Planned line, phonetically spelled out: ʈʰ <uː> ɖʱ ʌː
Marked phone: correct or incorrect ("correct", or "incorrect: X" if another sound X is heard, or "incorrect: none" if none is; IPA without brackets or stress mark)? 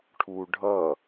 correct